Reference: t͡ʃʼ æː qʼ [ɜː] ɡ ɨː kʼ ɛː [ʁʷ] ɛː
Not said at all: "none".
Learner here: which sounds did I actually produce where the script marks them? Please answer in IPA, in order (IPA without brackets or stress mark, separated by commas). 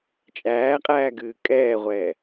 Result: æː, ʁʷ